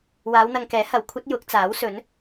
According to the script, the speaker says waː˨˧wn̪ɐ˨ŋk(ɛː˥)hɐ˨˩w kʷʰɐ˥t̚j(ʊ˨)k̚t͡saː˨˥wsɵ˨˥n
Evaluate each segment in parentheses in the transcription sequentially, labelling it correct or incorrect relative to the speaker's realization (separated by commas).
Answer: incorrect, incorrect